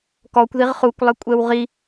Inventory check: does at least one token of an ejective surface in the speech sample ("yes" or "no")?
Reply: yes